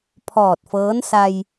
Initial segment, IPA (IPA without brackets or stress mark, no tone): pʰ